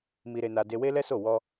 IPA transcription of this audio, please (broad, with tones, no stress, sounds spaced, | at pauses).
m i˧ ɾ e˧ n a˧ d e˧ w e˦ l ɛ˦ s o˦˨ w ɔ˧